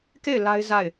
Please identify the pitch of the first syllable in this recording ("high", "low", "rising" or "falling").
falling